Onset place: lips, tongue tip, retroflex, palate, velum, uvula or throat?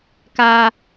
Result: velum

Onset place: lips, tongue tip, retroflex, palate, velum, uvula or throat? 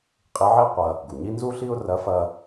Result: uvula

